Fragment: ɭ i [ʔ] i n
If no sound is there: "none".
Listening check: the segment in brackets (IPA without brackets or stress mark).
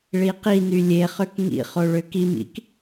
q